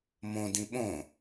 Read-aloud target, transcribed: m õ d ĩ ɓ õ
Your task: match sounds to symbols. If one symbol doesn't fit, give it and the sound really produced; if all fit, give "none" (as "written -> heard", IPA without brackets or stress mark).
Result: none